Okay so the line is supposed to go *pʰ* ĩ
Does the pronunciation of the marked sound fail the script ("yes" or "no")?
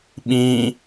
yes